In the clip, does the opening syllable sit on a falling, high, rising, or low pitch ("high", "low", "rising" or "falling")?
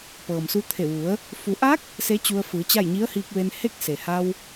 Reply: low